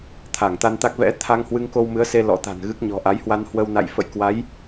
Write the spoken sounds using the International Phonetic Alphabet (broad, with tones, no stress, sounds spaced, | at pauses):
t̪ʰ a˧˩ ŋ t̪ a˧ n t̪ a˦˥ k̚ v ɛ̰˧˥ t̪ʰ a˧ ŋ h w ɨ˧ ŋ k o˧ w m ɨ˨˦ ə̯ s e˧ l ɔ̰˧˥ t̪ a̤˨˩ n ɣ ɨ˦˥ k̚ ɲ ɔ̤˨˩ ʔ a˨˦ j h w a˧ n h w ə˧ w n a̰˧˨ j f ə̰˧˨ j k w a˨˦ j